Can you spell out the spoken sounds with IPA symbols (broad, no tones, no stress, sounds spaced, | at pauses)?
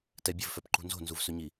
t ɛ bʲ ɵ v f œ p ǃ ṳ n z o̤ n z u v s ɵ ɲ i